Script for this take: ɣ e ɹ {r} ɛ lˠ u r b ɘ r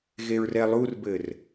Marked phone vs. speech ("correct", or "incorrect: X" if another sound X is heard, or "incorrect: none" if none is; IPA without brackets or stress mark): correct